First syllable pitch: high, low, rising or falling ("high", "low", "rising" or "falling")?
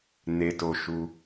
high